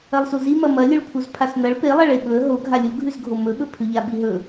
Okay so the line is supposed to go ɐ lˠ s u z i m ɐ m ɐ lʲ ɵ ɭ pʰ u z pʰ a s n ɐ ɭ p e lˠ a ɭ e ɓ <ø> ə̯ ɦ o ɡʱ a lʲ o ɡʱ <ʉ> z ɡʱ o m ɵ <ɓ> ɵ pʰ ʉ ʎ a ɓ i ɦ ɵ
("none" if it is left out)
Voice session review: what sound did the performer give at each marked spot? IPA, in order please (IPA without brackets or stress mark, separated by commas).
ɵ, ʉ, ɓ